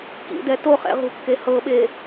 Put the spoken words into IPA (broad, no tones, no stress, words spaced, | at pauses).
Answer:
kḭdɛ toχɛ̰ ʁṳkːe hɤɓe